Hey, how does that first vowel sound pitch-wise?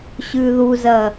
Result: low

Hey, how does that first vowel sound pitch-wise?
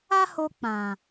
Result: high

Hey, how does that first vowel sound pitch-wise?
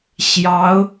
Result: rising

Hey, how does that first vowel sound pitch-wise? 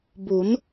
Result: rising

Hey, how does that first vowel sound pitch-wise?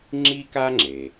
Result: high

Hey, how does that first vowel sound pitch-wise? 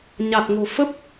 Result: low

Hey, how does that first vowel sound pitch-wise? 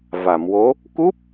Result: low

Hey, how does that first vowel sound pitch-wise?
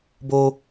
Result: high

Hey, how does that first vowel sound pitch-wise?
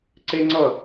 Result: high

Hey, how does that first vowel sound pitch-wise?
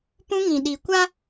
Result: high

